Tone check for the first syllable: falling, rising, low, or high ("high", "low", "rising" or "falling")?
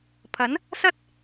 rising